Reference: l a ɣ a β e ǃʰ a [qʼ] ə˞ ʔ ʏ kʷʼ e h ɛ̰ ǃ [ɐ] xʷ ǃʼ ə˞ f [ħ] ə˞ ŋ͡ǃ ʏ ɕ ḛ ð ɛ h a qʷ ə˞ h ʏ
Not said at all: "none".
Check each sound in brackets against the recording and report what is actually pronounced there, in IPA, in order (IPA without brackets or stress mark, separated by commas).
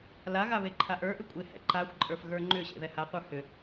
ʔ, a, ɣ